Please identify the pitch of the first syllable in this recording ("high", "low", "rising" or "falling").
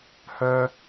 high